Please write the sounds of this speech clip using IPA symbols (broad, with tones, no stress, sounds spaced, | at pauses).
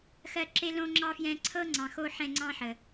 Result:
x ɜ˦ ǁ e˥ l õ˥ ŋ͡ǁ ɑ˥ f j ɛ̃˦ ǀʰ ɤ˥ ŋ͡ǀ ɑ̃˨ x o˦ ħ ɛ̃˦ ŋ͡ǀ ɑ̃˥ ħ ə˩